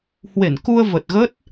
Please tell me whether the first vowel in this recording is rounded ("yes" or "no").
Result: no